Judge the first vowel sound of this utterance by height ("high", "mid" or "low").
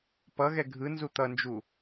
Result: mid